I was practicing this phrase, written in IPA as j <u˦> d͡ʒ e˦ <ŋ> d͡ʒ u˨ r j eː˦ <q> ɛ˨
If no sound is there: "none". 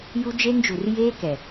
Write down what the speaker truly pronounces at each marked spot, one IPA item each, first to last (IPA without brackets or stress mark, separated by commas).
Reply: u˦, ŋ, k